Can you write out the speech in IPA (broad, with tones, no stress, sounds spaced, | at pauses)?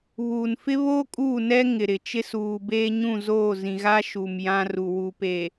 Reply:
β uː˨ n f ɪ˦ β oː˦ kʼ uː˦˨ n ɛ˦ ŋ ɪ˨ ɾ ɪ˨ t͡ʃ ɪ˦ s uː˨ b eː˦ ɲ ũ˦˨ z oː˦˨ z ĩ˨ ɣ a˦ ʃ u˨ m j ã˦ r u˨ w u˨ p eː˨